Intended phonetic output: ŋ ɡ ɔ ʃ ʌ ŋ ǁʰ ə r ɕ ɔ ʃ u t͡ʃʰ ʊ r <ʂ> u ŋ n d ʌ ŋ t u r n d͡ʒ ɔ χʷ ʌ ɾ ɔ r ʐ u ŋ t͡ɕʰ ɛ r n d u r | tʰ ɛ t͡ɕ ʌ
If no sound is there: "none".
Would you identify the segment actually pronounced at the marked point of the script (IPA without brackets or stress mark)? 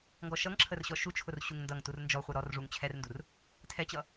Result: ɕ